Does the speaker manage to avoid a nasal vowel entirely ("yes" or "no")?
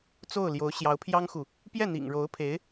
yes